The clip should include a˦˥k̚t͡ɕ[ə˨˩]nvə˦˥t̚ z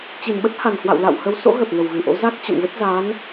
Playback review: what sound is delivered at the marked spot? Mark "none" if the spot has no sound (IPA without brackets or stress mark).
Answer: ə̰˧˨